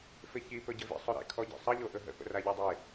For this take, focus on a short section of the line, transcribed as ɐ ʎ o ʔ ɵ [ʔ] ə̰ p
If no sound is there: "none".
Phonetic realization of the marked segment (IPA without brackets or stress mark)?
ɦ